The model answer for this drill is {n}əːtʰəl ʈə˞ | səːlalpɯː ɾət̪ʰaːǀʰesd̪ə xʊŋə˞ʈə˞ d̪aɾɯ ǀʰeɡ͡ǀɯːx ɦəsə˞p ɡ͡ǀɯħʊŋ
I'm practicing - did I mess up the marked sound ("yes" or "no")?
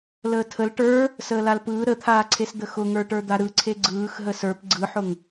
yes